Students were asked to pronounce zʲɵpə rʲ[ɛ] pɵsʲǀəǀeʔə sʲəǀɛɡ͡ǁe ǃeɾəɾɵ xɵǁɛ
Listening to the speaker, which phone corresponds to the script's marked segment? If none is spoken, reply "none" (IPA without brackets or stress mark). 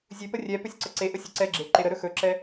ɛ